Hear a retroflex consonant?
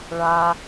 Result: yes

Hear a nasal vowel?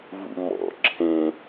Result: yes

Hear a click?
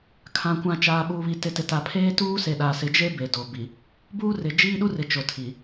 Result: no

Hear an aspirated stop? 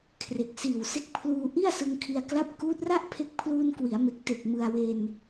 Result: yes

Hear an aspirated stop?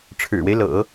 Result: yes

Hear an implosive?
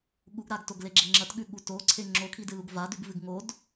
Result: yes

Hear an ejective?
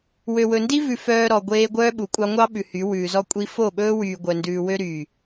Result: yes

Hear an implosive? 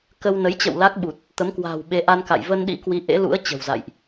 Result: yes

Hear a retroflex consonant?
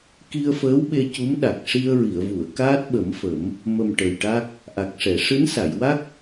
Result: yes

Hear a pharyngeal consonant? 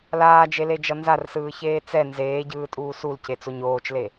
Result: no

